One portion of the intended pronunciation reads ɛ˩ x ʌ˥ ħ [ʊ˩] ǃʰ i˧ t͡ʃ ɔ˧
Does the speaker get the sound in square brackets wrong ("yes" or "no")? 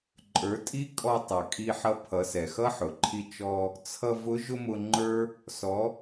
no